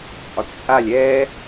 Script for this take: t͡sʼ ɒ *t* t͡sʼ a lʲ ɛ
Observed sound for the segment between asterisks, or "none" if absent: t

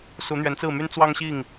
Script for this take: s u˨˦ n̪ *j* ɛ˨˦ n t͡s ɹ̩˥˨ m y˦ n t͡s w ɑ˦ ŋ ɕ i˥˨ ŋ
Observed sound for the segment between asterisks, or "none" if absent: ɥ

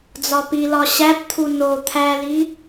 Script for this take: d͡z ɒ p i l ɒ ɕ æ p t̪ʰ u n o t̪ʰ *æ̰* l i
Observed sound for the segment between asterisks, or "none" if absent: æ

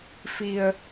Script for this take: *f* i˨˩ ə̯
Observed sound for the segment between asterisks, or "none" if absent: f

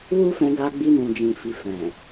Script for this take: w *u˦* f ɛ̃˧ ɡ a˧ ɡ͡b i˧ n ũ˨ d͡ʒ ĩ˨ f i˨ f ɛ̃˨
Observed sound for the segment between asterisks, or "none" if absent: u˦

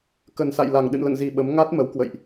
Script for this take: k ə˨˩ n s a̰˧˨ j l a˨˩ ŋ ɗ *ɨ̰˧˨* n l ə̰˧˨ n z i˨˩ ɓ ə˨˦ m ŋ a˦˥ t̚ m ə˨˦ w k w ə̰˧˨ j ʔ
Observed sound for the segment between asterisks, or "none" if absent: ɨ̰˧˨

